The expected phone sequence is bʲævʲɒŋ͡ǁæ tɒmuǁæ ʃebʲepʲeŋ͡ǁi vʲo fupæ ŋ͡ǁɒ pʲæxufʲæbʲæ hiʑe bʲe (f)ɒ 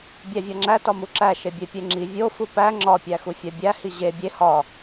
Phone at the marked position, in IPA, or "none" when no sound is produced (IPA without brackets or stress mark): h